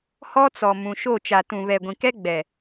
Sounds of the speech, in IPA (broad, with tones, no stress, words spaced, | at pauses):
hɔ˦t͡sɔ˨ mũ˨ʃo˦˨ t͡ʃa˨tũ˨βɛ˨ ɡʷĩ˨kɛ˦ ɡ͡bɛ˨